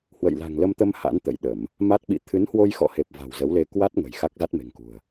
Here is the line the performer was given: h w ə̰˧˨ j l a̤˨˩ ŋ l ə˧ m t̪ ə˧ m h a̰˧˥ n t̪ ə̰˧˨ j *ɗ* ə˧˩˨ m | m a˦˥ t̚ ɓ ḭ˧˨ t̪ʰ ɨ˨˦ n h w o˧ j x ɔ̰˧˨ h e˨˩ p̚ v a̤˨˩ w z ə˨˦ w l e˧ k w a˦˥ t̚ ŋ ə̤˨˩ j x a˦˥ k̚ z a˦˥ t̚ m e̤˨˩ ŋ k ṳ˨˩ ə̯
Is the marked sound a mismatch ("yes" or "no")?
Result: no